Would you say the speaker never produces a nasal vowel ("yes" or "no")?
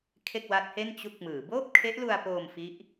yes